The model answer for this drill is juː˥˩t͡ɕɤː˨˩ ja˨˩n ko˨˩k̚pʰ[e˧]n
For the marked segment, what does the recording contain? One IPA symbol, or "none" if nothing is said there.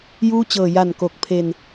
e˧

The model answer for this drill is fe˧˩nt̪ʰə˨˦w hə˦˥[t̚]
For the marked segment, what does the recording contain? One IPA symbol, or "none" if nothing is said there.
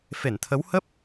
p̚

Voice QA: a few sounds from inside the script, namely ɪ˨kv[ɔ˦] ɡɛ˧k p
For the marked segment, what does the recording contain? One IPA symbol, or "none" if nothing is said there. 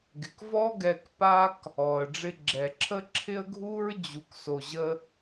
ɔ˦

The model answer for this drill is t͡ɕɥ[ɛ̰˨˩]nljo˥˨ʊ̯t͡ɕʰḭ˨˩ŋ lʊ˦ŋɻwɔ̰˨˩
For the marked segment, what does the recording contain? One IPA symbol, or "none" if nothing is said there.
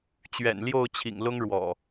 ɛ̰˨˩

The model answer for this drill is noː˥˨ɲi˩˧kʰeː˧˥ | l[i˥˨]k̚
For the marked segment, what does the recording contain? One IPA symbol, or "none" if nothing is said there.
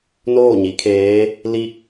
i˥˨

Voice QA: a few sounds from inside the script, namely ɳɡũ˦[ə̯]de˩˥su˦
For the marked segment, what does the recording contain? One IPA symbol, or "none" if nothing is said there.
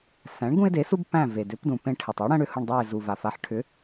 ɪ̯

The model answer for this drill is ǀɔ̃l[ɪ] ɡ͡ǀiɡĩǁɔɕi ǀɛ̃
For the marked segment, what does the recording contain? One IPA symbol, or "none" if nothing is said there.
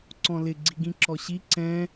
ɪ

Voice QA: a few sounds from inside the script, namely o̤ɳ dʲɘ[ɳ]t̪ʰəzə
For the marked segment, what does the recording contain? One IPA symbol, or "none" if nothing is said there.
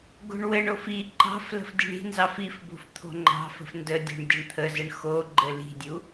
ɳ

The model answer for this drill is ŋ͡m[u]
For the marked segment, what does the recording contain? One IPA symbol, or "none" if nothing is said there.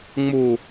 u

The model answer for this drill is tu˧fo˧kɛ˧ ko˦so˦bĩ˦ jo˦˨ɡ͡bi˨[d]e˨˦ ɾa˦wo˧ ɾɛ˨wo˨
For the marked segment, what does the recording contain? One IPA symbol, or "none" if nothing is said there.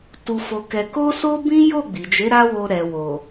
d͡ʒ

